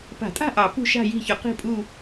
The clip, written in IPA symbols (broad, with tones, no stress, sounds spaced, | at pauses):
p a̤˨˩˦ tʼ a̤˦˨ ʔ ɑ˨˩˦ p ṳ˦˨ ʃ a̤˦˨ j i̤˦˨ ç ʏ˨˩˦ q i̤˦˨ pʼ u˦˨